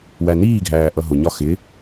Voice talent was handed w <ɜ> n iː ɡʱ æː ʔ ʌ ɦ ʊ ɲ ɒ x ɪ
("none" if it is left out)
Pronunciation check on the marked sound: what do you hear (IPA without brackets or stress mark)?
æ